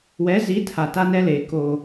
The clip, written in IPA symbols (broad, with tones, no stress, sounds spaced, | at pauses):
w ɛ˨˦ z i˨˦ tʰ a˨ t a˦ n ɛ˦ l eː˨ k o˦